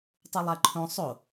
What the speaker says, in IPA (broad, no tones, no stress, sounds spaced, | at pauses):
tˤ u lˠ æ ǃʰ õ sˤ o